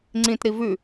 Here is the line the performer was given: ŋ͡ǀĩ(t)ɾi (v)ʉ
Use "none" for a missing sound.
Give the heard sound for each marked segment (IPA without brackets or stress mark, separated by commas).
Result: t, v